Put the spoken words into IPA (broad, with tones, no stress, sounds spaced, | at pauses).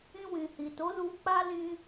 ĩ˧ w ĩ˨ h i˨ t o˨˦ l u˧ k͡p a˦ l ĩ˧